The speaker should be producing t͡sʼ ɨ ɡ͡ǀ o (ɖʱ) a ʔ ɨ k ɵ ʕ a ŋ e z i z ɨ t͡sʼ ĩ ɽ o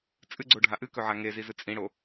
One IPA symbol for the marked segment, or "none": ɖʱ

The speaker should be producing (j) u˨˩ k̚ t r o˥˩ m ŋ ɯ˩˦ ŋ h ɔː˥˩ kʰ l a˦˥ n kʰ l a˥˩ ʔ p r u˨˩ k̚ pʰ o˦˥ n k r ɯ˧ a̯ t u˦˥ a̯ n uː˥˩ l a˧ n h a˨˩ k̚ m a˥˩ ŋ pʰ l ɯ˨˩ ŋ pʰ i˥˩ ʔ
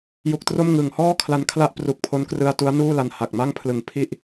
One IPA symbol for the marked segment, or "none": j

